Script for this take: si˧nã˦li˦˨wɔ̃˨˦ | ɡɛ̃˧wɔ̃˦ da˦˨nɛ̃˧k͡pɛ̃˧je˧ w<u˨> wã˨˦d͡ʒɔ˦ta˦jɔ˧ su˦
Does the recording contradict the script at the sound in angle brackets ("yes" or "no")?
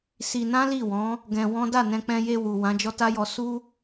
no